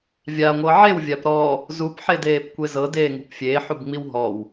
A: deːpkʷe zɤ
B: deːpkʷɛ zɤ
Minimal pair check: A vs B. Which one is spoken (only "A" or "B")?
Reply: A